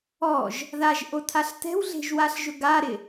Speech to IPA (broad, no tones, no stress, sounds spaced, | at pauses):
ɔ ʒ | ð a ʒ ʔ o tʰ a ɬ t ɛ̤ w ɮ e̤ ʒ w a ɬ ʒ ʊ ɡ a ɾ ɪ